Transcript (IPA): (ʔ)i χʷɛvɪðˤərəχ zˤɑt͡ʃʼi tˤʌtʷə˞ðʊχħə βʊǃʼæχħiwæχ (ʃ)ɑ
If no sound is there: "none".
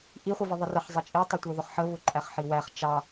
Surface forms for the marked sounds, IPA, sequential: ʔ, t͡ʃ

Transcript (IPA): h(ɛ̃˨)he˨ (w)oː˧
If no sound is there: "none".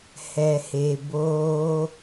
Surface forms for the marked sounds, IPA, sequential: ɛ˨, b

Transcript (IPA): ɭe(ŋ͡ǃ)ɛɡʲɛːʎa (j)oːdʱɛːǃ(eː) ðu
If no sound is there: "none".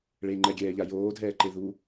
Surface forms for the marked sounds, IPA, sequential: ŋ͡ǃ, j, e

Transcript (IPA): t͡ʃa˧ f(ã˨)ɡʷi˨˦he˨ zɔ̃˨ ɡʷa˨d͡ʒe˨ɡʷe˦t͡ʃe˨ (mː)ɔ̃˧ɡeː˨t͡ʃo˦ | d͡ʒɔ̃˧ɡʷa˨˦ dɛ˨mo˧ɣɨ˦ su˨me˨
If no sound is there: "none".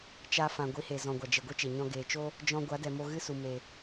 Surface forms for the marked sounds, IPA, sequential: ã˨, ɲ

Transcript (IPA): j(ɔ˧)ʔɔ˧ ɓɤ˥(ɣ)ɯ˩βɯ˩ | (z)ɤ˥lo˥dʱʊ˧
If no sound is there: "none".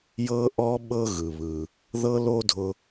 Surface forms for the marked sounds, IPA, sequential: ɤ˧, ɣ, ð

